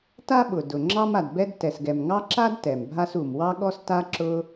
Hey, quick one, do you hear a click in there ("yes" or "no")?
yes